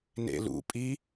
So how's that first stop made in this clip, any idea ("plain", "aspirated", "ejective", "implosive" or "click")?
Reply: ejective